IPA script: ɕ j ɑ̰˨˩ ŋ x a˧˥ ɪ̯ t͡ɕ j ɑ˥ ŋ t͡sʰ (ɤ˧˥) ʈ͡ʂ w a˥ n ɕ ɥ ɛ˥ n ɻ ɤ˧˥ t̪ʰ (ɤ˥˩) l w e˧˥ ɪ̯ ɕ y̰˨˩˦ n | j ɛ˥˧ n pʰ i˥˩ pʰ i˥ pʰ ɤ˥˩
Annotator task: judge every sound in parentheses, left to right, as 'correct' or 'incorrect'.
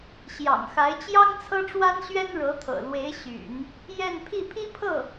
incorrect: ɤ˥, incorrect: ɤ̰˨˩

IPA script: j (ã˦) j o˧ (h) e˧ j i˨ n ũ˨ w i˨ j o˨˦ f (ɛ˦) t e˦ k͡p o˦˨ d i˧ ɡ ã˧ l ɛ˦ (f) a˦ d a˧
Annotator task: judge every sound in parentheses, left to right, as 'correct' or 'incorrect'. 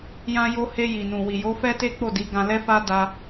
incorrect: ã˧, correct, correct, correct

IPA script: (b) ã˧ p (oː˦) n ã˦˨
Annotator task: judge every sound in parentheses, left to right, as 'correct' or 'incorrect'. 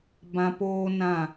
correct, correct

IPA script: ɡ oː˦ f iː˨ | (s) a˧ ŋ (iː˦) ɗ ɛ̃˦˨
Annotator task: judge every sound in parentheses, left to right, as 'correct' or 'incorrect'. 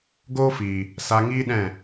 correct, correct

